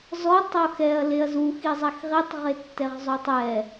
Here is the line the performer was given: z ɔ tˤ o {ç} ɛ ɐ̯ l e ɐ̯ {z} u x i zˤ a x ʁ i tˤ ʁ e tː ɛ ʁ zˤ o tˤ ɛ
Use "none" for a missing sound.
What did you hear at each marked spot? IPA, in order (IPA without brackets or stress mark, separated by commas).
x, z